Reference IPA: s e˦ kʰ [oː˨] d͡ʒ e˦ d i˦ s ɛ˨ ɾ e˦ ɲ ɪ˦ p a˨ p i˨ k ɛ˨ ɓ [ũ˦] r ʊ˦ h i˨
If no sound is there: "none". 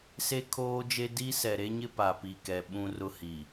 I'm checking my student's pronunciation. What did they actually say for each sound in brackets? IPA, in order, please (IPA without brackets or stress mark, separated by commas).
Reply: oː˦, ũ˦